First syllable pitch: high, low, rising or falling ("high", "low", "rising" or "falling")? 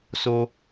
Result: high